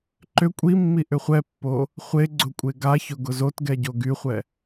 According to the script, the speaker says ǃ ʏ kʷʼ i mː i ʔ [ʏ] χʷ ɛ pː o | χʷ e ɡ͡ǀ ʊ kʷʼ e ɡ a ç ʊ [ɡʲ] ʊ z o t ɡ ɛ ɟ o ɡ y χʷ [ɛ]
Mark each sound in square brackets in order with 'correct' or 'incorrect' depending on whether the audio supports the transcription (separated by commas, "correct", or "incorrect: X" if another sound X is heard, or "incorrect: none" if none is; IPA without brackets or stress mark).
correct, incorrect: ɡ, correct